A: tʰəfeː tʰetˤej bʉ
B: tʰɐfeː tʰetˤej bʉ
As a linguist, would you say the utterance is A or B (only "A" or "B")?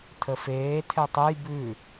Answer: A